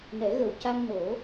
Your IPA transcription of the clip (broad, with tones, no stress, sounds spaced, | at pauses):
n ɛ˨˩˦ ɣ ə˨˩ w c a˧ ŋ n o˨˩˦